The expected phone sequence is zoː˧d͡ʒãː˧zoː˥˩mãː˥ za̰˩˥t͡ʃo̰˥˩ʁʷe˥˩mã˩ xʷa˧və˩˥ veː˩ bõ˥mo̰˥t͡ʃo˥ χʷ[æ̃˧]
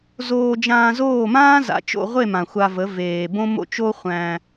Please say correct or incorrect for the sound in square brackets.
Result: correct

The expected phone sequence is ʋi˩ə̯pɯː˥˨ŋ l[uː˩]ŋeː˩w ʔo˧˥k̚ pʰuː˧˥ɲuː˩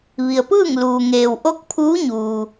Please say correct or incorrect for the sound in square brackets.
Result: correct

